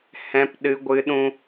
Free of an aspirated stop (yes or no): yes